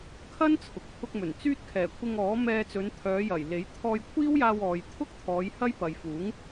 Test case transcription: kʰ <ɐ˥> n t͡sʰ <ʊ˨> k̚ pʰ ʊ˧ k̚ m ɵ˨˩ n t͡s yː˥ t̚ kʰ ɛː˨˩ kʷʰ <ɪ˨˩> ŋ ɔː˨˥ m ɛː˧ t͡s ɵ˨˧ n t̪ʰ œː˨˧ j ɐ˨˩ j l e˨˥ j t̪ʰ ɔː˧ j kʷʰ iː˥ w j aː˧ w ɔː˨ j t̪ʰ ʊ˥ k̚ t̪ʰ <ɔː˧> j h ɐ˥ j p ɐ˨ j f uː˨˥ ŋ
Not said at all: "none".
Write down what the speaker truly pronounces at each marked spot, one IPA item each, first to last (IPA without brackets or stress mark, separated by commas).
ɐ˥, ʊ˨, ɪ˧, ɔː˨˧